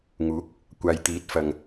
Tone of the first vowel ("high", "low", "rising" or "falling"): rising